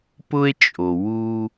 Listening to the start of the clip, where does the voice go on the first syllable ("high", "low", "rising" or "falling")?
high